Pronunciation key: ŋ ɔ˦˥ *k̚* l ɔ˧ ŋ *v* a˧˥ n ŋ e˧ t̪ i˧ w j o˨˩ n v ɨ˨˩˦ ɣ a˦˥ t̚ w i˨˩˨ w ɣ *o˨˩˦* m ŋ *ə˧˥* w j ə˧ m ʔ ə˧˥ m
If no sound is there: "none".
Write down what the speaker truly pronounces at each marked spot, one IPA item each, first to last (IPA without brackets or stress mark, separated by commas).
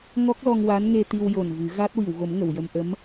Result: k̚, w, o˨˩˦, ə˨˩˨